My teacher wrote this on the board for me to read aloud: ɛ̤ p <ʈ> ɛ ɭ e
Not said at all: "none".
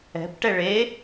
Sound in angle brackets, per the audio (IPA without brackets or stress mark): ʈ